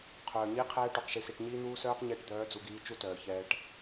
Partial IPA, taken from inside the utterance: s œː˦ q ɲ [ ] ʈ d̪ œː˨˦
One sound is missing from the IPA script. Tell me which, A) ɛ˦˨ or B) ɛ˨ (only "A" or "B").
A